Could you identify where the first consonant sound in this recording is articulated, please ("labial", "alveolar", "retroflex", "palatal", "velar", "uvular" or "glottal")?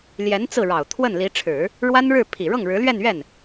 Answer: alveolar